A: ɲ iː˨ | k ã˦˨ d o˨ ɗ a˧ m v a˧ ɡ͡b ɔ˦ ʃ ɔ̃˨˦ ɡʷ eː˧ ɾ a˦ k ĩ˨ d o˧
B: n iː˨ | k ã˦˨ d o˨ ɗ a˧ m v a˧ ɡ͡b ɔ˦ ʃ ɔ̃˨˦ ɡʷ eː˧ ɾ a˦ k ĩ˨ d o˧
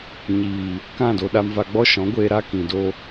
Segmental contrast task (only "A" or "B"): A